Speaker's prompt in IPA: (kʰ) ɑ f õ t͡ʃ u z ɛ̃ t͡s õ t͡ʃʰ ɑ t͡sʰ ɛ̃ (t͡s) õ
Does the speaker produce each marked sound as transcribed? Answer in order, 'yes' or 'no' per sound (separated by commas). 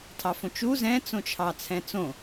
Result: no, yes